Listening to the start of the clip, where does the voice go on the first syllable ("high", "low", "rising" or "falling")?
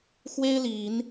high